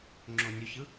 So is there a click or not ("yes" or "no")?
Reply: yes